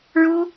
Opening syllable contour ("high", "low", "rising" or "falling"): high